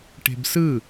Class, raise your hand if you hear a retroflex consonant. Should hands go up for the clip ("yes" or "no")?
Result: yes